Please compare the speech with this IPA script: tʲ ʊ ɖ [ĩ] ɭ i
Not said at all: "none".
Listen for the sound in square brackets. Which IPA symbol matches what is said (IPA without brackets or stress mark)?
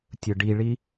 i